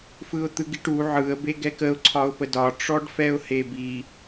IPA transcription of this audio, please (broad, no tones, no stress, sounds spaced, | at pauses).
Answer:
f ɯ ʊ̯ t̪ ɯ ɡ i ʈ u ʕ ɯ ə̯ b e ɡ ɛ k ə ʊ̯ ǀʰ ɒ ʊ̯ p ə d ɒ ʈ͡ʂ ɔ ɖ f ɛ ʊ̯ h e b i